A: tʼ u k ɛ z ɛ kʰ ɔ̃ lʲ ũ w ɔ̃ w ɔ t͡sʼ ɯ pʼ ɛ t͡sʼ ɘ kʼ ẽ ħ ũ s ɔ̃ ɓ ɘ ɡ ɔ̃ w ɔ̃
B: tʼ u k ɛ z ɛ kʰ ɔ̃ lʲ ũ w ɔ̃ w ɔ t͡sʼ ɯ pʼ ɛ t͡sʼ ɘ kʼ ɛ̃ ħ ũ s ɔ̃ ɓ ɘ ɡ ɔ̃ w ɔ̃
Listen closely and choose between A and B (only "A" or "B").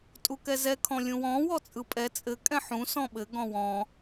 B